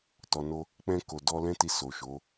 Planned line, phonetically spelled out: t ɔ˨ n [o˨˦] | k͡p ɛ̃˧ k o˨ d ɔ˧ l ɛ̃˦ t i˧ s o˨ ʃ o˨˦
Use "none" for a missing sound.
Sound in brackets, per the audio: o˧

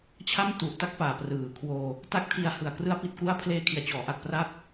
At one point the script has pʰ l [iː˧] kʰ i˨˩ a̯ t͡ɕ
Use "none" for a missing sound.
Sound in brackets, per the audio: eː˧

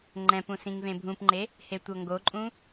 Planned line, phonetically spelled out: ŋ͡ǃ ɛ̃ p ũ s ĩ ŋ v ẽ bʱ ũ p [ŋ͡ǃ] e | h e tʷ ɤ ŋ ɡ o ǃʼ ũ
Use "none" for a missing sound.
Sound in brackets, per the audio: ŋ͡ǃ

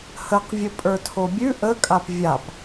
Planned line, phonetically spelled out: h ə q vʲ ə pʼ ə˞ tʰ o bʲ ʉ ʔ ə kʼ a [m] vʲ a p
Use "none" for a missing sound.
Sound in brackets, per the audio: p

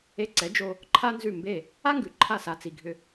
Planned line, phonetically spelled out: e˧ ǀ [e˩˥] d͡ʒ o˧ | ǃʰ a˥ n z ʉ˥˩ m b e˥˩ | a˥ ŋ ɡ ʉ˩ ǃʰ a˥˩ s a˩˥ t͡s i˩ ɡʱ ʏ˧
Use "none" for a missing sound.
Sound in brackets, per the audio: ɛ˩˥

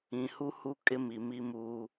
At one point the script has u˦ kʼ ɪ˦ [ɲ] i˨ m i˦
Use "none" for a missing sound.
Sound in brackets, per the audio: m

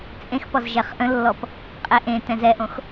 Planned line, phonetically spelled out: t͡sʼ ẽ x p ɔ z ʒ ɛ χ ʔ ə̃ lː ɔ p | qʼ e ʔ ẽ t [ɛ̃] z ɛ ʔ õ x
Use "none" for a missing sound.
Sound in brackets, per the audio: ɛ̃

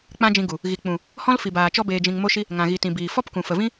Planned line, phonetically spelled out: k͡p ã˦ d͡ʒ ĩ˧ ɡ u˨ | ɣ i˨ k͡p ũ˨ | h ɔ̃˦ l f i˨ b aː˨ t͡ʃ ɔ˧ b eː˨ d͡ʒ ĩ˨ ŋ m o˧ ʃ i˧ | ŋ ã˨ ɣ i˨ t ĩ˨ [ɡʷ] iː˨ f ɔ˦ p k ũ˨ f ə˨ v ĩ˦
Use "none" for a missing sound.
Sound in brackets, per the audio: b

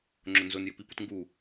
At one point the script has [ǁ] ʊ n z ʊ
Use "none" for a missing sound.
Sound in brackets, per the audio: ŋ͡ǁ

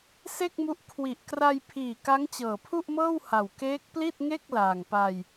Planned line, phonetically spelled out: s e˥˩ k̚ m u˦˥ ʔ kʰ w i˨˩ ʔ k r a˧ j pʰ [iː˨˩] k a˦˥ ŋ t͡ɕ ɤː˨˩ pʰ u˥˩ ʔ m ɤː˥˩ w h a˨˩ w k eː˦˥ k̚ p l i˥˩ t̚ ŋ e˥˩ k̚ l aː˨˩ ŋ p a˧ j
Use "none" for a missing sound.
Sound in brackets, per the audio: iː˨˩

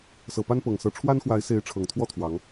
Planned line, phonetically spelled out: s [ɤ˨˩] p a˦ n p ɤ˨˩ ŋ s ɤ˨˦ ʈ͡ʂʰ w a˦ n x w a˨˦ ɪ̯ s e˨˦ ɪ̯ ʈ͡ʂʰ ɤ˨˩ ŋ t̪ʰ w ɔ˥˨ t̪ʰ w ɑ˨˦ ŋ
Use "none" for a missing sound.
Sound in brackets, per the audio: ɤ˨˩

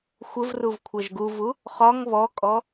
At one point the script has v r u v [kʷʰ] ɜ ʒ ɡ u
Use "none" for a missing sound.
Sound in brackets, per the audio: kʷʰ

